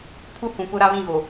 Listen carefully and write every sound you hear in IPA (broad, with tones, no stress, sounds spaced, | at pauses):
pʰ u˦ h ũ˨ p ʊ˦ ɾ a˦ β ĩ˦˨ ɣ o˨